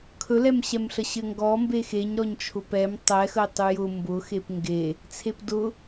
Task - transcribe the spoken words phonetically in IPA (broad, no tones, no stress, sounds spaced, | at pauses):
kʰ ɵ l ɛ m ɕ ɛ m ɬ ə ɕ ɘ ŋ ɡ ɔ m b e x e ɲ ɾ ɔ ɲ t͡ʃʰ ʊ p ɛ m tˤ ɛ x ə ɪ̯ tˤ ʉ j ʊ m b ʊ x e p ŋ ɡ e | t͡sʰ e p d ʊ